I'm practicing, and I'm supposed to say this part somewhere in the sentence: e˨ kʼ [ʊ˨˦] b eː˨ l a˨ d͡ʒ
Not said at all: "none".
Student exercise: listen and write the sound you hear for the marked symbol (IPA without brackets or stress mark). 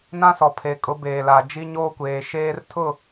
ʊ˨˦